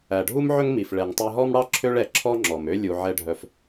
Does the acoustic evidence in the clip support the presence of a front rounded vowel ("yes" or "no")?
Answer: yes